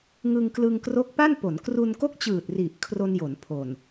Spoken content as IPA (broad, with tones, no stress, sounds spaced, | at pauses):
ŋ ɯ˧ ŋ k l ɯ˧ ŋ k r o˦˥ k̚ p a˥˩ n p o˩˦ n k r u˧ n k o˥˩ k̚ t͡ɕ ɯː˨˩ t̚ r i˨˩ ʔ kʰ r o˧ n j o˩˦ n pʰ o˨˩ n